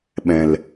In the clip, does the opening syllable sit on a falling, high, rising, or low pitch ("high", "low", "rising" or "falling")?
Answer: low